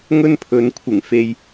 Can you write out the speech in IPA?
ŋ ɵ˥ n pʰ ɵ˨ n kʷʰ ɪ˨˩ ŋ f e˨ j

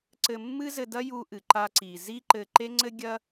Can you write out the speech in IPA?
ǀ ɘ˧ mː ɨ˥ z ɘ˧ d ɐ˥ j u˧ ʔ ɨ˩ ǃ a˧ ǀ i˩ z i˥ ǃ ɘ˧ ǃ e˥ ŋ͡ǀ ɘ˥ ɡʲ ɐ˥

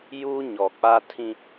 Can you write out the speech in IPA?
j uː˦ ɲ ɔ˨ k͡p a˦ tʰ ĩ˦

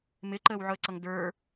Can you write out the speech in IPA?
m ɪ ǃ əː w ʕ ʊ ə̯ ǀ ʌ ŋ d ə˞

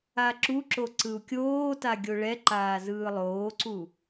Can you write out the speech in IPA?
a ǁ u ǁ o ǀ ɯ u̯ kʲ oː t a ɡʲ o ɭ ɛ ǃ aː z ɯː lˠ oː ǀ u

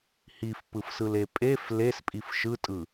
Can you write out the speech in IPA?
h i f p ɯ f s ɯ l e pʼ e f l e s pʼ i f ʃ ɯ tʼ ɯ

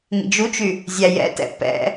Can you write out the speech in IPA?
ŋ ḭ d͡ʒ u t͡ʃ y | zʲ æ j ɛ̰ t ɛ̰ p ɛ̰

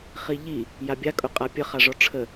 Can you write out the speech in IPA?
χ i ʎ i | j a bʲ a kʼ ʊ qʼ a pʲ ə χ a ʐ ɔ ʈ͡ʂʰ ə

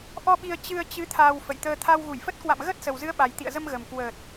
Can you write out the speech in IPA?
ʔ ɔ˧ ɓ i˧ ə̯ t͡ɕ ɨ˧ ə̯ t͡ɕ ɨ˨˦ t̪ʰ aː˧ w f ə̰˧˨ j t̪ əː˧ t̪ʰ a˧ w ɣ u˧˩ j f ə˦˥ t̚ k w a̰˧˨ m ɣ ə˦˥ t̚ s ə˨˩ w z ɨ˨˦ ə̯ ɓ a˨˩ j t̪ ḭ˧˨ ə̯ z ə˧ m ɣ ə˨˩ m k w əː˨˩ t̚

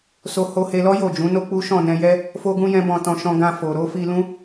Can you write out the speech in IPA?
s o˧ h o˧ h e˧ l ɔ˦ j o˦˨ d͡ʒ ũ˨˦ n o˦ k͡p u˦ ʃ ɔ̃˦˨ n ɛ̃˧ j ɛ˦ | f o˦ ɡ ũ˦ j ɛ̃˦ b ɔ̃˧ t ɔ̃˧ ʃ ɔ̃˧ ɡ ã˧ f o˨ ɾ o˨˦ f i˧ l ũ˦

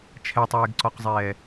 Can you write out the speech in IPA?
t͡ʃʰ ɛ tˤ eː ɡ ǀ ɔ q zˤ ɛː

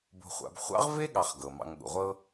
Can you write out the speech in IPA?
b o̤˨ χʷ a̰˨ b χʷ ɑ̰˥ ʁ v e˥ ɠ ɑ˨ χ ɡ ɤ˩ m ɑ̰˨ ŋ ɠ ṵ˩ ʁʷ ɤ˦

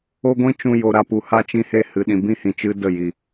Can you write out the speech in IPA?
o˦ ɡʷ ĩ˦ t͡ʃ ũ˧ j o˨ ɾ a˨ p u˨ h a˧ t͡ʃ ĩ˧ h e˧ h ɨ˨ ɗ ĩ˨ b ĩ˦ h ĩ˨ t͡ʃ ɨ˧ d ə˦˨ j i˨

